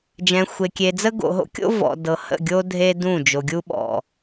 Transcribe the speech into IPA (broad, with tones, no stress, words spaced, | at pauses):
d͡ʒɛ̃˨xʷe˨kʲe˨d͡zə˦ ɡo̰˨ɦo̰˦kʲo̰˦ vɔ̰˨dɤ˨ hə̰˦˨ɡʲo˦ dʱe˦ dũ˦˨d͡ʒo˨ɡʲu˦ ɓɔ̰˨